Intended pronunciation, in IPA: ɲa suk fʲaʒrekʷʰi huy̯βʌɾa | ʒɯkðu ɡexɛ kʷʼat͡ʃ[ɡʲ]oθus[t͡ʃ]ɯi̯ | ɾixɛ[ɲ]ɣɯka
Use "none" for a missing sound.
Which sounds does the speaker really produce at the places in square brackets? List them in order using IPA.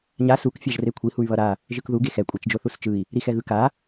d͡ʒ, t͡ʃ, none

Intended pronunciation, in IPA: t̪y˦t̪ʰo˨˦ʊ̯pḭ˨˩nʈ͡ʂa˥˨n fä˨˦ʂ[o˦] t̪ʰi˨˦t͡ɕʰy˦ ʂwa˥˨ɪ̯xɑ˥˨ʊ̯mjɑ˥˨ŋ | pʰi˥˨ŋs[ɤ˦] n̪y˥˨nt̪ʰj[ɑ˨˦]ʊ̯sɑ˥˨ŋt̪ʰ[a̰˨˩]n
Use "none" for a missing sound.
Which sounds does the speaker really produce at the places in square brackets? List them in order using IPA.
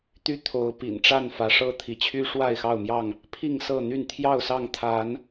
ɤ˦, ɤ˥˨, ɑ˥˨, a˨˦

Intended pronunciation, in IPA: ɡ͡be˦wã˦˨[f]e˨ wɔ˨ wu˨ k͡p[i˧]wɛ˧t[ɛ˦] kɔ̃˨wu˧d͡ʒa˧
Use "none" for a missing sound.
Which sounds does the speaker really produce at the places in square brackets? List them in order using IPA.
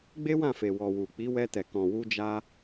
f, i˨˦, ɛ˨

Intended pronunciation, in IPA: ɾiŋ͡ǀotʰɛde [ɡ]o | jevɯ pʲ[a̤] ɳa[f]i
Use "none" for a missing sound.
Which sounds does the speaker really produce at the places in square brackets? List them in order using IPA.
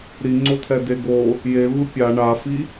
ɡ, a, f

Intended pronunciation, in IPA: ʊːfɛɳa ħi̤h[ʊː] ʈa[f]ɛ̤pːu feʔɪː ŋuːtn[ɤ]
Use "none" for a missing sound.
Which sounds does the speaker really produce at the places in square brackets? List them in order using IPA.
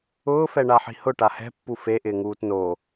ʊ, h, o

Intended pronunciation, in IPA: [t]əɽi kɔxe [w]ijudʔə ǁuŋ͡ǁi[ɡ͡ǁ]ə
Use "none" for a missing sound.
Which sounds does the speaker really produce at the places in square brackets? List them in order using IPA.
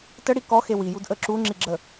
t, w, ɡ͡ǁ

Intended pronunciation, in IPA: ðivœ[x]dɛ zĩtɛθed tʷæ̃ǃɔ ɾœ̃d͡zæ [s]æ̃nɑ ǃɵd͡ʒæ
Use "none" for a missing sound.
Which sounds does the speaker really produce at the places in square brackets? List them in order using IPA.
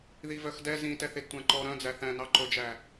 x, θ

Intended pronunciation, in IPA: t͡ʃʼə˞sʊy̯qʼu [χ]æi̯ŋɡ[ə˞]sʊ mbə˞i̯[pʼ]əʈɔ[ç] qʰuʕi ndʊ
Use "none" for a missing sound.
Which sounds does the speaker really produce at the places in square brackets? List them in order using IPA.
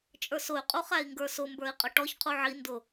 χ, ə˞, qʼ, ç

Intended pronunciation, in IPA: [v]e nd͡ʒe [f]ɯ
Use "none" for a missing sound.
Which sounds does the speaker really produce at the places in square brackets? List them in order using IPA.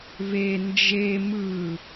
v, m

